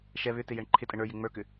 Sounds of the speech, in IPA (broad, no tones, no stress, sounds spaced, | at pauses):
ʃ ɛ β ʏ t ɪ j ɛ ɳ ǃʰ ɪ tʼ ə ɳ ə˞ j ɪ ŋ͡m ə˞ k ʏ